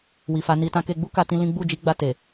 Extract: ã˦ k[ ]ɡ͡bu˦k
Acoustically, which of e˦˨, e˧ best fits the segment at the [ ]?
e˧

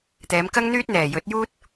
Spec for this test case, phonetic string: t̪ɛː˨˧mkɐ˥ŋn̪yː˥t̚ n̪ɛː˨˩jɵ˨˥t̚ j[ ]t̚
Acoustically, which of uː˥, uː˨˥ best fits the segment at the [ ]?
uː˥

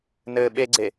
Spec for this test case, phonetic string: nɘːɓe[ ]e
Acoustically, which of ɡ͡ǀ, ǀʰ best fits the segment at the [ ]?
ɡ͡ǀ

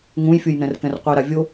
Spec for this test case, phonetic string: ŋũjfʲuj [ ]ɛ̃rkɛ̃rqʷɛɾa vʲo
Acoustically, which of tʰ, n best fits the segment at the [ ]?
n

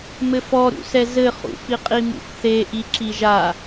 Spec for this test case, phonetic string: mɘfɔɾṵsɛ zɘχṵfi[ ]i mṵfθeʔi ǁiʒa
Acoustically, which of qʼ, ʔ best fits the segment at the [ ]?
qʼ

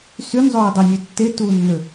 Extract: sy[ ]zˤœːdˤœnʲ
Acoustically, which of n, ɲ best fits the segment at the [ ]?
n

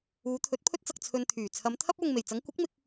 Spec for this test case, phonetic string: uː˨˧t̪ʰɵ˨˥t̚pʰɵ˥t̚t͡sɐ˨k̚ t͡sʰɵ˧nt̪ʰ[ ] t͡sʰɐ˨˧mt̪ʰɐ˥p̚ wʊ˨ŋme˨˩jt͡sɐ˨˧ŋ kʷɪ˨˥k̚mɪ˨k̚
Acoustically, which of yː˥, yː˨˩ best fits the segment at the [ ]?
yː˨˩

